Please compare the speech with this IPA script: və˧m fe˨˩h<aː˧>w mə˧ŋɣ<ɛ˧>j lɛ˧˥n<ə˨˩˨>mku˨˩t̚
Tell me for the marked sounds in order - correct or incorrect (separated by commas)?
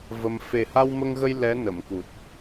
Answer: incorrect, incorrect, correct